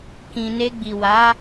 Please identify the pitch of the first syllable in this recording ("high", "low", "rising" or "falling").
low